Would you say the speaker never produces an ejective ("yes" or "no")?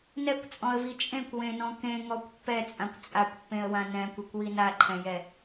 no